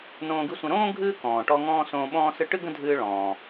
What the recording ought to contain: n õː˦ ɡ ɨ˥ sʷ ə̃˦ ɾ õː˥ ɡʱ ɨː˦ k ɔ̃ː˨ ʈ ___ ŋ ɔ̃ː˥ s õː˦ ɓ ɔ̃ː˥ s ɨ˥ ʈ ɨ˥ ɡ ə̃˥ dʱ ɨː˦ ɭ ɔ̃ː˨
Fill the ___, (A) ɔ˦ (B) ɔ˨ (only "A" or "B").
A